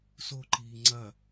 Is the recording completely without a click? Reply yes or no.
no